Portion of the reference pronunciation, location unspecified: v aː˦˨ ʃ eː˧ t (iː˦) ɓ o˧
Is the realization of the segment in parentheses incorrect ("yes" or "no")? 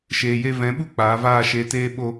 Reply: yes